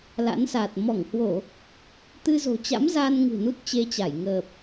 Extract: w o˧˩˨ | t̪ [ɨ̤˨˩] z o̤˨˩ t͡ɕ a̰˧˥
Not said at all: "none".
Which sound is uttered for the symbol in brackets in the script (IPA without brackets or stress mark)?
ɨ˧